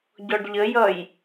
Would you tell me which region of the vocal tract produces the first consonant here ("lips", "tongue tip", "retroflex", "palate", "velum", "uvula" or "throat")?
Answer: palate